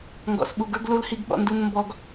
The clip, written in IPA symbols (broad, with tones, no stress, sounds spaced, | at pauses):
ŋ ɡ ɔ̰˨ s ɓ u˨ ɡ ə˞˦ ɡ l u˦ l h i˦ ɡ ɓ ɔ̰˦ n d u˦ n m b ɔ˦ ɡ